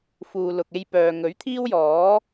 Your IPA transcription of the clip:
f uː˨ l ʊ˨ k̚ e˧ j p œː˨ ŋ ɵ˨˥ ɥ t̪ʰ iː˥ w j ɔː˨˥

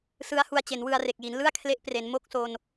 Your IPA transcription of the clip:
s ɯ˦˥ a̯ h u˧ a̯ t͡ɕ e˩˦ n w ɯ˧ a̯ r e˨˩ k̚ j i˩˦ n l ɯ˥˩ a̯ kʰ l e˦˥ ʔ p r e˩˦ n m o˥˩ k̚ s o˧ n

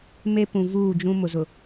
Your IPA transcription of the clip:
m e˦ p ũ˨ v uː˦˨ d͡ʒ ũ˦ m ʊ˨ z ʊ˨

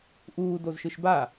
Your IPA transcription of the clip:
ʔ uː d o z ʃ ɯ ʃ b a

